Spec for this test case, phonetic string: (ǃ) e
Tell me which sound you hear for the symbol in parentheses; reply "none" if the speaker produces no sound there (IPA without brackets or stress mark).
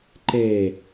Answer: ǃ